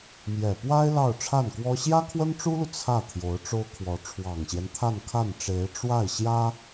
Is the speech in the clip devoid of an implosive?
yes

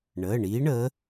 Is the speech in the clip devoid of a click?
yes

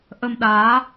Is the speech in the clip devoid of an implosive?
no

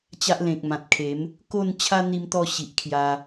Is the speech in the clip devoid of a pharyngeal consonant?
yes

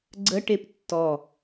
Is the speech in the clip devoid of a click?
no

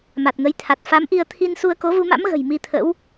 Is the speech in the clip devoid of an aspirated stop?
no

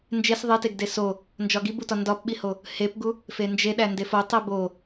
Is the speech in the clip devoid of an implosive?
no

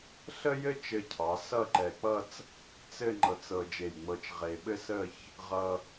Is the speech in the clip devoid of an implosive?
no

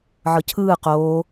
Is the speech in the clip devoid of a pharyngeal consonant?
no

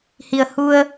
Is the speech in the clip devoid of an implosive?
yes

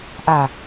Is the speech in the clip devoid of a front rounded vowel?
yes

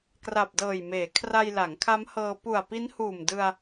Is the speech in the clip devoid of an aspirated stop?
no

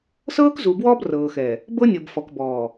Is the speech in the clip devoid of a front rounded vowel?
yes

